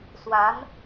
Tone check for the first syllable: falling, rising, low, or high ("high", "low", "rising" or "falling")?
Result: rising